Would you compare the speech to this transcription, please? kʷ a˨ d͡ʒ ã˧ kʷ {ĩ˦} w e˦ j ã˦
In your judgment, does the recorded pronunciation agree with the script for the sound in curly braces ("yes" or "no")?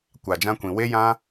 no